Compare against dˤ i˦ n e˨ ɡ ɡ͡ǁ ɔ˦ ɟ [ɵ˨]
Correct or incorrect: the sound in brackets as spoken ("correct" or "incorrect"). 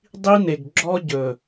correct